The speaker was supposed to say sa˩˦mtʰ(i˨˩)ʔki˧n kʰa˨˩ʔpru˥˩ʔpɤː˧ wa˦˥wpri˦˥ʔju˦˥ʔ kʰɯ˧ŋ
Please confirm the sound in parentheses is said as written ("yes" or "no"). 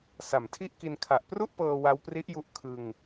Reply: no